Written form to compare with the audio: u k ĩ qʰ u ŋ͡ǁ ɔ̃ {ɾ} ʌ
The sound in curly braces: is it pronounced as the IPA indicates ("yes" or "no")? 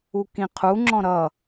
yes